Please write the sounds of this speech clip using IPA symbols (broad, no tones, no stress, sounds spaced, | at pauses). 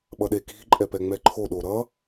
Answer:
ɓ ʌ ɗ e k i̤ ǃʼ ɛ p ɛ ŋ͡m ɛ ǃʰ o ɗ o ɾ ʌ